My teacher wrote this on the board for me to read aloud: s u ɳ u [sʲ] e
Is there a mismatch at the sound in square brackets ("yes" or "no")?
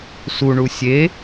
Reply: no